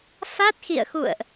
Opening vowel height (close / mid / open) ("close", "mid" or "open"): open